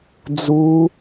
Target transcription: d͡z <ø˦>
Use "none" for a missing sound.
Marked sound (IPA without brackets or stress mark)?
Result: u˦